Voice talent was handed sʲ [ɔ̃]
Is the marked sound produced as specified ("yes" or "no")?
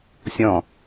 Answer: yes